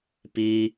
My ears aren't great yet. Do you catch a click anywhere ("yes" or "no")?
no